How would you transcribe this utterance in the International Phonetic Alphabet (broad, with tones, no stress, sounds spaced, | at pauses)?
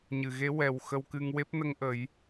ɲ ɨ˨˩ ɣ e˧˥ w ɛ˨˩ w x ə˧ w k ɨ˧ ŋ w e˦˥ p̚ n ə˧ ŋ ʔ ə˨˩˦ j